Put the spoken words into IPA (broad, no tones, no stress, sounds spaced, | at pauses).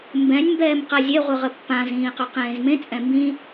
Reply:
m b ɛ̃ nʲ m b ɛː m q a zʲ e ʁʷ ɯ ʁ ə pː ã z ĩː q ɵ q ẽː z m ẽ t͡sʼ ɛ̃ m b ĩ